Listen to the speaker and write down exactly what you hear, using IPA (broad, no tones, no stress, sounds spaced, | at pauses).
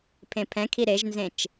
pʰ ẽ pʰ ɛ̃ kʰ i ɾ e ʒ n z ẽ t͡ʃ